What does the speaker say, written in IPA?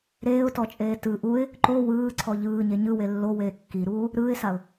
ɾ eː ʊ̯ t ɔ t͡ʃʼ eː t ɯ ʔ u ɪ̯ | ǃ o w ɯː ǀʰ ɔ ʎ ɯː ɲ e ɲ ɯ w e lː o w eː kː i ɾ uː | ɾ ɯː ɪ̯ s a ʊ̯

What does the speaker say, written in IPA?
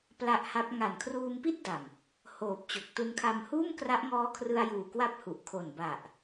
p l a˦˥ ʔ h a˦˥ p̚ ŋ a˨˩ n kʰ r uː˧ m p i˥˩ t̚ d a˨˩ m | h oː˨˩ p̚ t͡ɕ o˨˩ k̚ t u˧ n kʰ a˧ m h uː˥˩ m k r a˦˥ ʔ ŋ ɔː˦˥ kʰ r ɯ˧ a̯ j uː˨˩ k w a˦˥ p̚ h u˨˩ ʔ kʰ o˨˩ n b a˨˩ ʔ

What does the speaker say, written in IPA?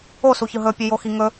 o s u ç ɯ ɦ ɵ pʲ ɵ j o x i ŋ ɵ

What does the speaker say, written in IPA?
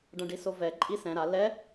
ɖ ɐ̃ ɖ i s o v ɛ ǃʼ i s ɛ̃ ɾ a l ɛ

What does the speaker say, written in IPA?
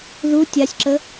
ð u tʲ a sʲ ǁ ə

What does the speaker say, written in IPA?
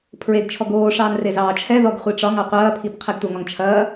pʰ ɹ e ɡ t͡ʃʰ ɔ ɡ oː ʂ ɑː n r e z ɑː t͡ʃʰ ɛ ð ɔ ɡ χʷ i ʈ͡ʂ ɒ ŋ ɑ qʷ ɐː pʰ i p qʰ e ɡ tʷ ɐ ŋ ɒ ŋ t͡ʃʰ ɐː

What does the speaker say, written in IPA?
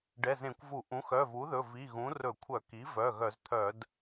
ɖ ɛ˩˧˩ z ẽ˧˩˧ kʷ v u˧˩˧ ʔ ũ˩˥ x œ˩˧˩ v u˩˥ ð ɵ˩˧˩ v i˩˧˩ ɣ ũ˩˥ r ɵ˧˩˧ kʷʰ œ˧˩˧ k i˩˥ v œ˩˧˩ ɣ œ˧˩˧ z t̪ʰ œ˧˩˧ d

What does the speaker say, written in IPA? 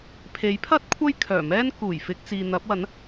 pʰ e˨˥ j pʰ ɐ˥ t̚ kʷʰ ɐ˥ j kʰ œː˨˩ m ɛː˥ n k uː˨˩ j f ɪ˧ k̚ t͡s iː˨ n̪ ɐ˨˥ p̚ w ɐ˨˥ n

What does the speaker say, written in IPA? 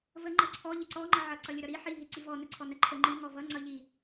v ə ŋ͡ǃ ʌ ǀʰ ɔ ʎ ə ǀ ɔ ŋ͡ǃ ʌ ʕ ʌ ǀ ʌ lʲ ə ɾ ʌ ɾ i ħ i ɦ i ǀ i v ɔ n ə ǀʰ ɔ n ə ǃʰ ə ŋ͡ǃ i ŋ ɔ v ʌ ŋ͡ǀ ʌ ʎ i

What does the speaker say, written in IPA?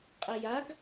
qʼ ɛ j a ɡ

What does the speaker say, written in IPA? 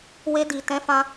w e˧ d i˨ t ɛ̃˨˦ f ã˧

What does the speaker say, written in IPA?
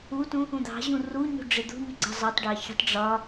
u t ũ | ũ d̪ ɑ̤ ʑ ũ r u ɲ ṳ ɖ͡ʐ ɪ d̪ ṳ ɲ ɪ ɡ͡ǀ ʌ zˤ ɑ tˤ ɖ ɑ ç ə̤ tˤ ɖ͡ʐ ɒ

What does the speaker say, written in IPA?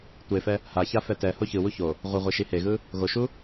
tʷ e f ɛ | h a ç a f ɛ t ɛ h o ç ɯ w u ç o | ʁʷ ɯ ʁʷ e ʃ i h e ɣ ɯ | ɣ o ʃ u

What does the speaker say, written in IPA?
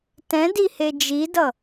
t ɛ̃ d i h e d͡ʒ i d ʌ

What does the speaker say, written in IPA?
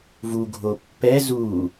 v u ɡʱ o pː ɛ z u

